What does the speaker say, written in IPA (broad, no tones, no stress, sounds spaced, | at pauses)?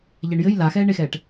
ʎ ɛ ɳ j ɘ j l a x ɛː ɳ e x ɛː ʈ